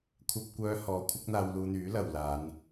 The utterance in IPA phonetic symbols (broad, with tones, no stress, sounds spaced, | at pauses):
kʷʰ ɐ˥ p̚ kʷ œː˥ h ɔː˧ kʷʰ ɐ˥ k̚ n̪ aː˧ w l uː˧ n̪ yː˨˥ l ɐ˨ w l aː˨˧ n